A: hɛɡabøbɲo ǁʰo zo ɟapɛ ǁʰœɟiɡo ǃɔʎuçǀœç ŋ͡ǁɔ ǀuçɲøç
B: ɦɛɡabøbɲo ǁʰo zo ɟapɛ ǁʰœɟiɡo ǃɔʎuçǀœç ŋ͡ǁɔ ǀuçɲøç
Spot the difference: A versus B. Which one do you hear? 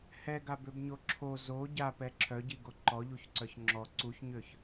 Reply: A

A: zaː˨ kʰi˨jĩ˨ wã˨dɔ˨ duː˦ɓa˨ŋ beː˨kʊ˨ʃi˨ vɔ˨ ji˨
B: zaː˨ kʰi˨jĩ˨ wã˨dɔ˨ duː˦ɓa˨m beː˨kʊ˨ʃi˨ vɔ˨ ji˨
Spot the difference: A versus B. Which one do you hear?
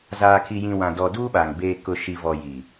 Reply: A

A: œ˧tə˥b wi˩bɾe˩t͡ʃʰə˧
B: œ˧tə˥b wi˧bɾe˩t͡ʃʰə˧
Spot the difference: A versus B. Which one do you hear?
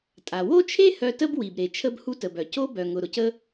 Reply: A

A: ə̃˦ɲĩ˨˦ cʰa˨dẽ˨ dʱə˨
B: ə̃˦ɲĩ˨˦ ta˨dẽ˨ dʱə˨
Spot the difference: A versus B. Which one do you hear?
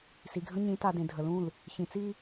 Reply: B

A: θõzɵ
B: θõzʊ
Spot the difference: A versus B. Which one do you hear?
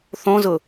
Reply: B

